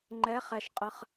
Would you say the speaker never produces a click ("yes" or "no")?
no